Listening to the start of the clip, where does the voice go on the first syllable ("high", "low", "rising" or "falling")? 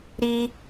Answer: high